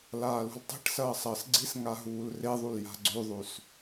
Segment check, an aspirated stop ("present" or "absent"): absent